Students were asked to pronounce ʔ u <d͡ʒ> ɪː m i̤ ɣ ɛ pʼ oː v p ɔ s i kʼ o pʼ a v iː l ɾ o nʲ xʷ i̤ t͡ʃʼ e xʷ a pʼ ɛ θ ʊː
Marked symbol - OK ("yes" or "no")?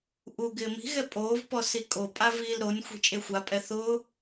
no